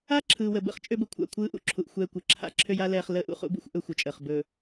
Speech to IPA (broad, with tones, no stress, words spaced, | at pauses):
a˦ǁʰɯː˨wə˨bə̰˦χ t͡ʃʼø˦bə˨kʷʰa̰˦˨ kʷʰɯː˦ʔṵ˨ǁʰu˨ʔ xʷɛː˦kʷɯ˨ ǁʰa̰˦ǁʰø˦ja˦ lɛː˦χ ləː˦ʔṵ˨χṵ˦bṵ˦xʷ ʔɵ˦xʷə˨t͡ʃʼəː˨χ bɵ˨